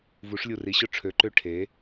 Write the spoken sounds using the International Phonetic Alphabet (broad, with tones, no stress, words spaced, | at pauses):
vu˩˥ʂlʲu˧˩ri˩˥ɕʊ˥˩ ʈ͡ʂʰø˩˥ǃø˥˩ ʈʰe˩˥